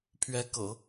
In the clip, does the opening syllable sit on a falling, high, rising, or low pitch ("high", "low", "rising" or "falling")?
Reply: rising